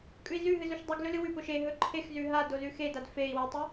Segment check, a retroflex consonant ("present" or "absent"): absent